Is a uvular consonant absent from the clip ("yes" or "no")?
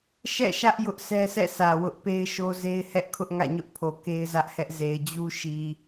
yes